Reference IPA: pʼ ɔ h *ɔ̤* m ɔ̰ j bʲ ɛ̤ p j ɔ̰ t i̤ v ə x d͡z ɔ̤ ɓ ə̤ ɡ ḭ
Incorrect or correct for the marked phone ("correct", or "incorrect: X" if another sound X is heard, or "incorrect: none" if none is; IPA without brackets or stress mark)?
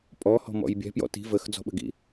correct